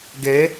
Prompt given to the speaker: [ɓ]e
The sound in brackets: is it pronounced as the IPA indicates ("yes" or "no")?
no